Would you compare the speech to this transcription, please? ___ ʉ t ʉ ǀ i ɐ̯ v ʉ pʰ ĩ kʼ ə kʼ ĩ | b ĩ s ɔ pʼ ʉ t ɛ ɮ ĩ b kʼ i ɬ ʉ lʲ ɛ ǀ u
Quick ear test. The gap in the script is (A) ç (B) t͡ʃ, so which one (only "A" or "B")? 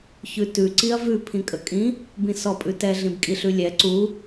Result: A